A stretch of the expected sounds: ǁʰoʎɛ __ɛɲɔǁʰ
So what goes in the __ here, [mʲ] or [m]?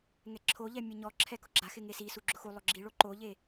mʲ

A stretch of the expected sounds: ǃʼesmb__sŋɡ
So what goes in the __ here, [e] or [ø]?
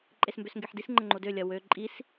ø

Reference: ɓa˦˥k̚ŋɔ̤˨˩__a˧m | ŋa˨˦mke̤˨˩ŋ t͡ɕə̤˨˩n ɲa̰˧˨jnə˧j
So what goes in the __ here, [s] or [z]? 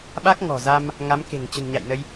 z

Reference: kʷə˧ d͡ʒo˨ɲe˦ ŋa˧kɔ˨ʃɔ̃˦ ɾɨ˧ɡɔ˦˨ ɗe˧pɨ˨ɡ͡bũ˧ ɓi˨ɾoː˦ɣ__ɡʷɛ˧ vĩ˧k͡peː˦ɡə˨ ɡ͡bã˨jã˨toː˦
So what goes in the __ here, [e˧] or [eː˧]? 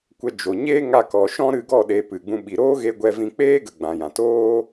e˧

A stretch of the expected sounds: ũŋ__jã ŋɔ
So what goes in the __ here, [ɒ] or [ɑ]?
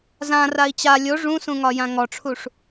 ɒ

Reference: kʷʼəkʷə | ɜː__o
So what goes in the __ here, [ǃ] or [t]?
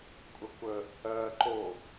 ǃ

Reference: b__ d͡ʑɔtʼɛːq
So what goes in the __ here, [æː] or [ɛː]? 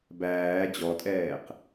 æː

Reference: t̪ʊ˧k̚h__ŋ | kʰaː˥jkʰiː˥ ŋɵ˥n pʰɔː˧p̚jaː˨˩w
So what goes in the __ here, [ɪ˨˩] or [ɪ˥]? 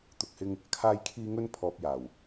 ɪ˥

